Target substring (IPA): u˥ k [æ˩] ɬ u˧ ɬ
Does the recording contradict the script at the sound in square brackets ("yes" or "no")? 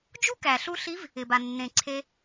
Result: no